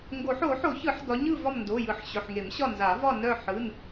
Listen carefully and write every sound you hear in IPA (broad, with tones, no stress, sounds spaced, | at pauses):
ŋ ɡ o˨˩˦ ħ o˨˩˦ ħ o˨˩˦ ç ɯ˨˩˦ ħ d ɒ˨˦ ɲ ɯ˦˨ v ɒ˦˨ m n d o˩˧˩ j ɯ˨˩˦ ħ ɕ ɵ˩˧˩ ħ ŋ e˨˩˦ m ɕ ɒ˦˨ n z a˨˩˦ v ɒ˦˨ n œ˦˨ ħ ɯ˩˧˩ n